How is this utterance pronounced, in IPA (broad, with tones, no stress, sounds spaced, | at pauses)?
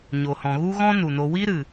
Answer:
ɲ o˨ h ɔ̃˨ ɣ u˦ ɣ ɔ̃˦ n u˨ n o˧ w i˦ ɾ ɨ˨